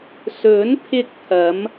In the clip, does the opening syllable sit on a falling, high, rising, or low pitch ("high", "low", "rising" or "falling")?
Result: rising